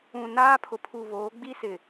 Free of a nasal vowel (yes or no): no